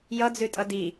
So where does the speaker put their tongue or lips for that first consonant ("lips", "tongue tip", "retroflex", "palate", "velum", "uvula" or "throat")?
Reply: palate